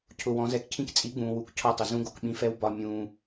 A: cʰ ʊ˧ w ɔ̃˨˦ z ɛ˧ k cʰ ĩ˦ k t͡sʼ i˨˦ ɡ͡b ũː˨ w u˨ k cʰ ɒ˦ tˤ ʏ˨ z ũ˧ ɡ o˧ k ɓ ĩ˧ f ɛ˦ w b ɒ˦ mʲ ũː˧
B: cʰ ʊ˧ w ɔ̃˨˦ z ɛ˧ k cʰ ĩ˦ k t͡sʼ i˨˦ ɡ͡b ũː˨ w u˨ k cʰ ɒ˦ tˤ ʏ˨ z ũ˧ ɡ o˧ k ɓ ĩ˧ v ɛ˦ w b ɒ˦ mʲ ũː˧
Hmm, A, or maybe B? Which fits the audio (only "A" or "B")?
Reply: A